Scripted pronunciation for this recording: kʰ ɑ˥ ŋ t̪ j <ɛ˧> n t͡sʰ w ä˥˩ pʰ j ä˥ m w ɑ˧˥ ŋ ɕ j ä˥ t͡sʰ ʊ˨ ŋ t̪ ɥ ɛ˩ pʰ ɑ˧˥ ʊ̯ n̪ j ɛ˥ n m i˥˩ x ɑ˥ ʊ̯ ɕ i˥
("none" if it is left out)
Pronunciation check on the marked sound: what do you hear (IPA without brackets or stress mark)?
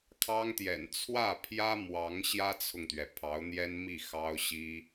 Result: ɛ̰˨˩